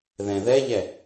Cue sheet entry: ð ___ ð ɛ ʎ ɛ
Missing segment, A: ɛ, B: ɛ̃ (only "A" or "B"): B